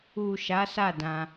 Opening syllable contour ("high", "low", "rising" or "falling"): low